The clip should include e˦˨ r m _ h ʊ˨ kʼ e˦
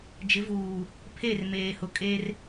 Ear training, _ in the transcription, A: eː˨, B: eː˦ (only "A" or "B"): A